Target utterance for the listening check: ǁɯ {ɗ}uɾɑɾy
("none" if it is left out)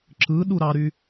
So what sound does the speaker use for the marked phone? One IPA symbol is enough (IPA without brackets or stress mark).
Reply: ɗ